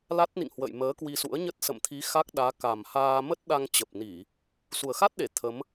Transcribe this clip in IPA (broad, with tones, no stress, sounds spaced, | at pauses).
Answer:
l a˦˥ t̚ n ḭ˧˨ ŋ h w ə̰˧˨ j m əː˨˦ k w i˧ s ṵ˧˥ ə̯ ɲ ə˦˥ t̚ s ə̰˧˨ m t̪ʰ i˨˦ x a˦˥ k̚ ɗ aː˨˦ k a˨˩ m h aː˧ m ə˦˥ t̚ ɗ a˧ ŋ t͡ɕ ə˨˩ p̚ n i˧˩˨ | s u˨˩ ə̯ x a˦˥ t̚ ɗ e˧˩ t̪ʰ ə˨˦ m